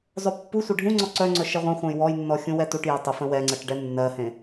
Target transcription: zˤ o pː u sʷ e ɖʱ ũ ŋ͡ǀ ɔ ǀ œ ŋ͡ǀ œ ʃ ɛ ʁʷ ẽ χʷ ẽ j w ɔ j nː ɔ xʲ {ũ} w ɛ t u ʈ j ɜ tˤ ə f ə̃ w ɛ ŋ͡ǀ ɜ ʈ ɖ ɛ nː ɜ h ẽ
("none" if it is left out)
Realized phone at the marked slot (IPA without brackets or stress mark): ũ